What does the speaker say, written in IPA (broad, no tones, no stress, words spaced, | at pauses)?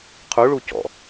qʰuɭu cɔ̰